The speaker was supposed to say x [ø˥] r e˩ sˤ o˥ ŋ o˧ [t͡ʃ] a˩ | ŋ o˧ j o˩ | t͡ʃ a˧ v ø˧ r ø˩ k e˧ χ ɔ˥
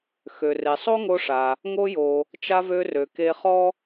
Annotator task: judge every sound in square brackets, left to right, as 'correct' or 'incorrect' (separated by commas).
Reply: incorrect, incorrect